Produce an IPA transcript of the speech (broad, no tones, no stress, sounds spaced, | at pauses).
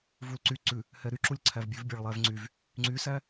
v u l ǀ y ǀ ʉ | h ɛ ɾ y ǁ u lʲ ǀʰ æ v bʲ ʉ v bʲ ɑ ɭ lˠ æ v ŋ͡ǀ y v | ŋ͡ǀ y s æ